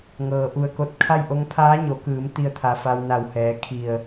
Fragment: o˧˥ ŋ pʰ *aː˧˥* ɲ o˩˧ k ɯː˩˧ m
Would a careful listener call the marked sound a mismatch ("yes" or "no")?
no